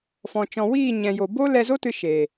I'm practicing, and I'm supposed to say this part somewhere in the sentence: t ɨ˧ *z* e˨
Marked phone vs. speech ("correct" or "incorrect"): incorrect